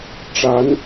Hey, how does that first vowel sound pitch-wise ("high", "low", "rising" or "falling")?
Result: rising